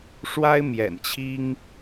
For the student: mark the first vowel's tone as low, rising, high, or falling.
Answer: high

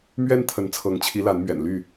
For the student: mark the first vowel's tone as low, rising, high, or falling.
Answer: high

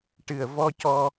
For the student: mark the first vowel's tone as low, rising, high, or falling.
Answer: low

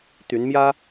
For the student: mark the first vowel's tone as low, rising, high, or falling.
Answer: rising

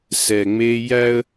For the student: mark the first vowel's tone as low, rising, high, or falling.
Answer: low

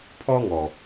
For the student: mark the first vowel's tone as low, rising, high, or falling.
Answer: high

